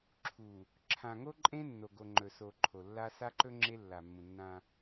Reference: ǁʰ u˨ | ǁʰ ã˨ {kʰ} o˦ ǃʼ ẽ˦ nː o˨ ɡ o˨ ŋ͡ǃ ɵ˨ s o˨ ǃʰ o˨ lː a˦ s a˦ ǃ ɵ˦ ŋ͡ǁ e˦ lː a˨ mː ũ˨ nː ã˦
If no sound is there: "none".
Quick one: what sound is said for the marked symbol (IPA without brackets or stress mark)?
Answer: ŋ